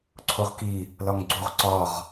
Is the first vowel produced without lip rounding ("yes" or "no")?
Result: no